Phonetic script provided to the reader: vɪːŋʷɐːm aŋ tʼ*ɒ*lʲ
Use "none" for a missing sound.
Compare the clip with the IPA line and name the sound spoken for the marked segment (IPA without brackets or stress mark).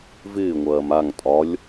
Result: ɒ